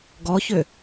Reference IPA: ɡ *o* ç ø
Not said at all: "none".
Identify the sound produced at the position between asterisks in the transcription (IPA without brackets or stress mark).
ɔ